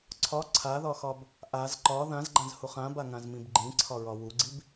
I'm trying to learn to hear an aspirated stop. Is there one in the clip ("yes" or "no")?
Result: yes